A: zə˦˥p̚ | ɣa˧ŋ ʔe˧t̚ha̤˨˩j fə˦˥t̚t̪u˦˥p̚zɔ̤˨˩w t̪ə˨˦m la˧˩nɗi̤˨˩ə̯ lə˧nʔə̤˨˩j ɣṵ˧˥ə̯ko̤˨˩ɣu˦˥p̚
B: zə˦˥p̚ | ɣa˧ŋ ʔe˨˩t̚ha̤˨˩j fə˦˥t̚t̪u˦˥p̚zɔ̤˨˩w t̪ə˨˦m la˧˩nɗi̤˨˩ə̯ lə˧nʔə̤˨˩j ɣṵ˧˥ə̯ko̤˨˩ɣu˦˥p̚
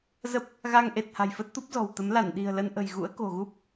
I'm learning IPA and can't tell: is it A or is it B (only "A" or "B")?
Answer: B